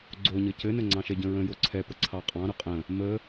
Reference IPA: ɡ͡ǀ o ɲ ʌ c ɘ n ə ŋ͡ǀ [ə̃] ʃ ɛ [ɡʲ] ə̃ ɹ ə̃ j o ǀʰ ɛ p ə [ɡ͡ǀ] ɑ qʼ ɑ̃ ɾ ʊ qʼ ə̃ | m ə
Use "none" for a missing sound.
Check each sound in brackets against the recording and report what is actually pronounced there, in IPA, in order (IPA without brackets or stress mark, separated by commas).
ɑ̃, ɟ, ǀʰ